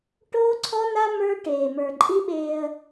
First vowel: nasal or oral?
oral